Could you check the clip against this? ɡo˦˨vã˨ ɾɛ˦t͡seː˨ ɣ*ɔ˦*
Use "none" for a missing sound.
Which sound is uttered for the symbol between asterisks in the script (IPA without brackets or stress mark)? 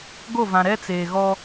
ɔ˦